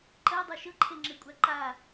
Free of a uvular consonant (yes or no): yes